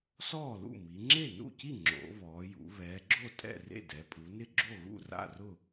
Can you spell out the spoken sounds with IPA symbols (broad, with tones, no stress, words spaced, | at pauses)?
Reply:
sɔː˥˩lṵ˥˩mi˩˧ ŋ͡ǁe˥˩nṵ˥˩ci˥˩ ŋ͡ǁo̰˩˧ βɔː˩˧jṵ˩˧ βɛː˩˧ɡ͡ǁo˥˩tʼɛ̰˥˩ rḛ˥˩dɛ˩˧pʼu˩˧nɪ˥˩ ɡ͡ǁo˥˩ɣṵ˥˩ ra̰˥˩rʊ˥˩